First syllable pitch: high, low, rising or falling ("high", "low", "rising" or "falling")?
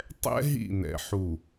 high